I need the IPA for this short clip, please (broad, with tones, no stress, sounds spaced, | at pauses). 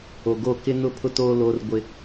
o˨ ɡ o˦˨ k ɪ˦ n ʊ˦ pʰ ʊ˦ t oː˦ l o˦ r ɡʷ ɪ˦